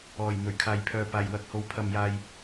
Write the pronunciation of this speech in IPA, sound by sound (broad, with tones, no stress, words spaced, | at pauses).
ɔː˨˩j n̪ɵ˨˩ɥkʰaː˨jpʰœː˨ paː˨˩jwɐ˨˥k̚ho˨˧w pʰɐ˨mjaː˨j